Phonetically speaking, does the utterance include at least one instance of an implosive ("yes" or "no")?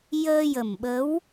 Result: yes